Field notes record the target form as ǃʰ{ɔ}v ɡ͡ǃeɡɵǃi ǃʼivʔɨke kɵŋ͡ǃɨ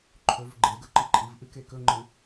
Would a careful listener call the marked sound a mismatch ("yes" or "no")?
yes